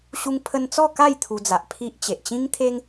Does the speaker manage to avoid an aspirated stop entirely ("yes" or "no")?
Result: no